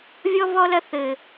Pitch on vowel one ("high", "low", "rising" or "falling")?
high